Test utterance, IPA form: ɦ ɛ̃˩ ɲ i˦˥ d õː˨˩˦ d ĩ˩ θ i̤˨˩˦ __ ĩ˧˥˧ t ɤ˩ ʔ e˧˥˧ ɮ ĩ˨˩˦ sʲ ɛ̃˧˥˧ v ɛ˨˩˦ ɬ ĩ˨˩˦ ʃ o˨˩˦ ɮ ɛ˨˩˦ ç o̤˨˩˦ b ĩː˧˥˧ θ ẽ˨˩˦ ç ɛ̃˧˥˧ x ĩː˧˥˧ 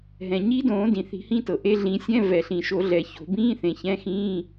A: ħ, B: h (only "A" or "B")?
B